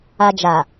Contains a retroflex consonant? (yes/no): no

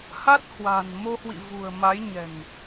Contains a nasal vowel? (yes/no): no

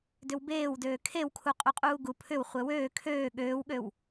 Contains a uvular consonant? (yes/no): yes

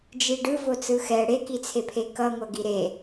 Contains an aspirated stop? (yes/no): yes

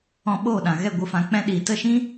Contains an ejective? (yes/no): no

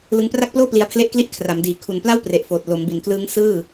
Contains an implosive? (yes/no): no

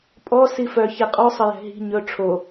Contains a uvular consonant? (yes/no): yes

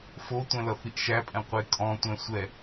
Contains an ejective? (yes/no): yes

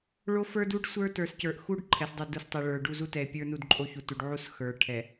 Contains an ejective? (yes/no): yes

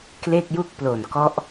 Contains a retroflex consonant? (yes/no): no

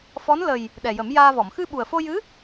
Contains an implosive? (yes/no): yes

